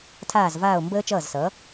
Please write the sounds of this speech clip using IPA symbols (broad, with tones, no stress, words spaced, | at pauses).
tʰaː˧˩zvaː˧˩o̯ mbəː˧ t͡ʃʌː˧˩zsʌː˩˧